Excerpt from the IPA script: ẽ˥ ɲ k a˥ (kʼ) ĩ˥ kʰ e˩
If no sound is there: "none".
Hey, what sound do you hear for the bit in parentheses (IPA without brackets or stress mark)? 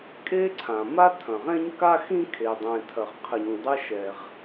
x